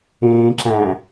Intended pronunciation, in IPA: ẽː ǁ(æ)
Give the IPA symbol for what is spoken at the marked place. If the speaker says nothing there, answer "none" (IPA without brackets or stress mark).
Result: æ̃